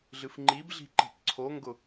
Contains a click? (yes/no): yes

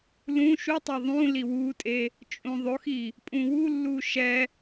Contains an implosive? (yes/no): no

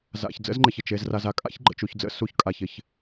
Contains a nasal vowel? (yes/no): no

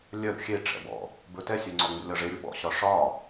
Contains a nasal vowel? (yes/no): no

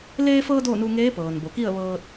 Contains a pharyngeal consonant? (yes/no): no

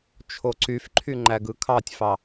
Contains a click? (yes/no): yes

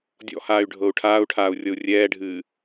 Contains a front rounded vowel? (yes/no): yes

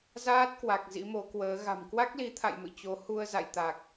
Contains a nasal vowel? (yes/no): no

